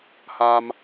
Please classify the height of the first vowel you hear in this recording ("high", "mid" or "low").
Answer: low